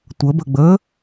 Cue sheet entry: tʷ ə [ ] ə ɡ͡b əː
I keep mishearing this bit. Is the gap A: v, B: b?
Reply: B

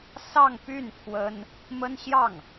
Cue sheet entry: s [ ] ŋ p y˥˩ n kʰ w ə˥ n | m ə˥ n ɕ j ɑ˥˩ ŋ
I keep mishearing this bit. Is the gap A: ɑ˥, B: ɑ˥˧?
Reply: B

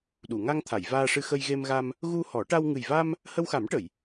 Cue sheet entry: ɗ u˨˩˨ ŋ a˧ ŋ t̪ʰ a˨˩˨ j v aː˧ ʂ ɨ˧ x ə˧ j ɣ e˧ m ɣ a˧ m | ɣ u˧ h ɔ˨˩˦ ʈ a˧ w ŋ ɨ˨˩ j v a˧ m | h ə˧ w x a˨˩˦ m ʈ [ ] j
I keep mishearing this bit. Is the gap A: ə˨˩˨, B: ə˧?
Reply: A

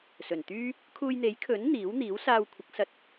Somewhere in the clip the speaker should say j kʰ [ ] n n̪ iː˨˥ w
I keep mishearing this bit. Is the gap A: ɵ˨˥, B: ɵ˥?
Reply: A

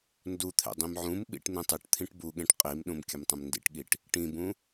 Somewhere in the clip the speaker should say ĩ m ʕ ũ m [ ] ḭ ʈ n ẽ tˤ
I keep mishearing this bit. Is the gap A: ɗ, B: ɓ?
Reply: B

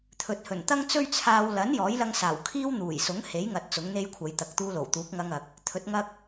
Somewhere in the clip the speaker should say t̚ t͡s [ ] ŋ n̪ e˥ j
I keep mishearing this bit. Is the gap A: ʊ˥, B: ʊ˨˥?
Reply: B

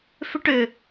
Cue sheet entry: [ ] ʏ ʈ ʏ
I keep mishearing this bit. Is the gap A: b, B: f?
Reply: B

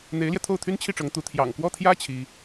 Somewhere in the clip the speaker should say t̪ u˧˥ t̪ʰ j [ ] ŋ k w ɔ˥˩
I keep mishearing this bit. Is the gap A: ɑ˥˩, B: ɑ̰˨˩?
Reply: B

